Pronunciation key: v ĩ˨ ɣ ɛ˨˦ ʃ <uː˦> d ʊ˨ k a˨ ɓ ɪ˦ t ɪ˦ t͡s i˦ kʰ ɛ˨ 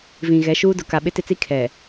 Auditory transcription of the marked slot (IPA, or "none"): uː˦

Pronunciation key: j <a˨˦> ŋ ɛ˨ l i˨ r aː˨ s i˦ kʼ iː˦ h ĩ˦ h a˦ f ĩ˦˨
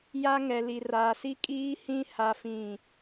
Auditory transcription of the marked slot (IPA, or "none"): a˦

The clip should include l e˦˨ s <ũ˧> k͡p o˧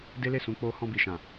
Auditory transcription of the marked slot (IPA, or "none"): ũ˧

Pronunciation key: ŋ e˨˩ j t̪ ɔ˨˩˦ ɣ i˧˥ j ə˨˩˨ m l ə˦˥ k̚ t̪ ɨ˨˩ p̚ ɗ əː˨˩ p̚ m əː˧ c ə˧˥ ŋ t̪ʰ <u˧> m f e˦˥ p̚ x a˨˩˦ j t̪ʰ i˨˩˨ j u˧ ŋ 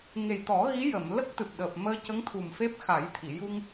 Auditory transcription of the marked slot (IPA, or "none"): u˨˩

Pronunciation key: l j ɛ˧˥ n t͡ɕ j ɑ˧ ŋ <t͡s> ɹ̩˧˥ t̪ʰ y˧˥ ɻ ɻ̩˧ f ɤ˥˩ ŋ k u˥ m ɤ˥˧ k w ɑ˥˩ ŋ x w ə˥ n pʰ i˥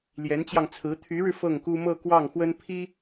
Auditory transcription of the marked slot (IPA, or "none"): t͡sʰ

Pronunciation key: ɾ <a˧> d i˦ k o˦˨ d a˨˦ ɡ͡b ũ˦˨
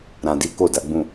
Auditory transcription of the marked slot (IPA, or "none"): ã˧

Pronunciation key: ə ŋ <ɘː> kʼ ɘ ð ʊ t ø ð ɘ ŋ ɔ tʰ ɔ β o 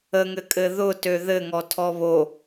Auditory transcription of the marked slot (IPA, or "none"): ɘ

